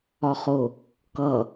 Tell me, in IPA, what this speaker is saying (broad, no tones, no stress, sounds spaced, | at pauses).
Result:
ɒ χ ʊ | k ʌ